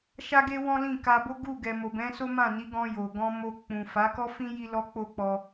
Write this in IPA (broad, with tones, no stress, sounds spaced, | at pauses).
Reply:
ʃ a˦ ɡ e˦ w ɔ̃˦ l ĩ˦˨ k a˧ b o˦ ɡ u˦˨ ɡ ɛ˨ m o˨ b ɛ̃˨˦ s o˦ m ã˦˨ n i˨˦ ɡ ɔ̃˧ j o˨ ɡ ɔ̃˧ m o˧ k͡p ũ˨ f a˨˦ k ɔ˦ f ĩ˦ j i˦ l ɔ˦ k͡p o˦ k͡p ɔ˧